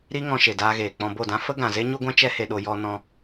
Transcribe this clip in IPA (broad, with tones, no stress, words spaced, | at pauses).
ɾi˦ ŋɔ̃˧ʃe˨daː˧ɣeː˨ k͡pɔ̃˧bo˦˨dã˦ fə˦ɡã˨ze˦ ɲu˦ɡʷã˦ t͡ʃɛ˦ he˧ɗo˧ jɔ˧nɔ̃˧